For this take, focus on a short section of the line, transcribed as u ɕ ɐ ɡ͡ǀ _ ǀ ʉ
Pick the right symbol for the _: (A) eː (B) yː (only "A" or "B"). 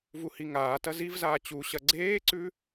A